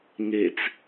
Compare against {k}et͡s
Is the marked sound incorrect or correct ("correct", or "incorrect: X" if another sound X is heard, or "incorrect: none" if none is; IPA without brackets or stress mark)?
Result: incorrect: ŋ